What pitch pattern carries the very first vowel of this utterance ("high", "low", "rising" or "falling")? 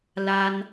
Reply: high